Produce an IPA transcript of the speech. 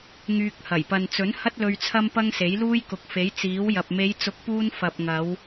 ŋ yː˧ k̚ h ɐ˨˩ j p ɐ˨ n t͡s ɵ˨˥ n h ɐ˥ t̚ l ɵ˧ ɥ t͡sʰ ɐ˥ m p ɐ˥ ŋ s e˨˥ j l uː˥ j k ʊ˨ k̚ f e˨˥ j t͡s iː˨˥ w j ɐ˨ p̚ m e˨˧ j t͡s ʊ˨˥ k̚ p uː˧ n f ɐ˨ p̚ ŋ ɐ˨˧ w

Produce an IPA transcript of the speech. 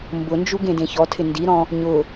m b ʊ n d͡ʒ u ɡ ẽ d ẽ ç ɔ tʰ ɪ n d i ɾ ɔ̃ | ɲ ʊ

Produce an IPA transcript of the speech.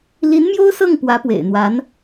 l i˧˥ n m j o˥ ʊ̯ s ɤ˥˩ ŋ p w ä˧˥ p w ḛ˨˩ ɪ̯ n̪ w a˧˥ n

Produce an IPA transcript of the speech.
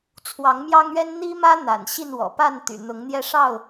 t͡sʰ w ɑ˨˦ ŋ m j ɑ˦ ŋ ɥ ɛ˦ n n̪ i˦ m ä˦ n̪ a̰˨˩ n ɕ i˥˨ n w ɔ̰˨˩ p a˥˨ n t̪ y̰˨˩ n̪ ʊ˨˦ ŋ n̪ j ɛ˦ ʂ ɑ˥˨ ʊ̯

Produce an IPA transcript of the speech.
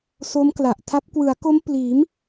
s o˦˥ m k l a˨˩ ʔ tʰ a˦˥ p̚ k w ɯ˩˦ a̯ k o˦˥ m p l iː˩˦ m

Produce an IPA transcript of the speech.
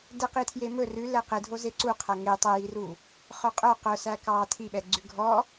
d ɛ q i tʰ j e m ɵ r ʉ l ɛ q e dʱ o z e ǀ u qʰ æ ŋ e tˤ ɛ j i r u | χ œ qʼ œ q œ s æ k ɑ tʰ i ɓ ɛ ɡ͡ǀ ʉ ɡʱ ɔ

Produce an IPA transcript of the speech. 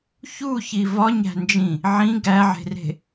ç u ç i v ɒ ɲ æ̤ n d͡ʒ ĩ | ʕ ĩ ɡ æ ʕ e̤ r e̤

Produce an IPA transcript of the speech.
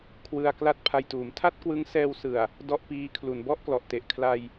kʰ w ɯ˧ a̯ k l a˥˩ t̚ pʰ a˧ j t uː˩˦ m tʰ a˥˩ t̚ k w ɯ˦˥ ŋ s ɛː˧ w s ɯ˨˩ a̯ | d ɔ˥˩ ʔ p iː˦˥ kʰ l u˩˦ n b ɔ˥˩ ʔ k l ɔ˨˩ ʔ t e˨˩ ʔ kʰ l a˧ j

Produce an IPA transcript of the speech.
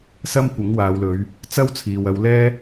s ɐ˥ m kʷ ɪ˨˥ ŋ w aː˨˧ w l ɵ˨˧ ɥ | t͡s ɐ˥ w t͡sʰ iː˨ w ɐ˧ w l ɛː˥

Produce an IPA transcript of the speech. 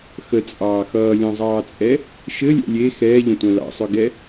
x ə t͡sʼ ɑː x ʌː lʲ ɔ̃ zˤ ɑː t͡sʼ ɛ | ʃ ɘ lʲ ɛ̰ lʲ e x ɛː ʎ ə̃ tʷ œ̃ l ɑ̰ sˤ œ ɡ ɛ

